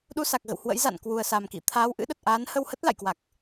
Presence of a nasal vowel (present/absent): absent